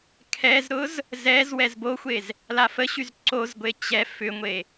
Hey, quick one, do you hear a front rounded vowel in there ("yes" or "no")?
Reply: yes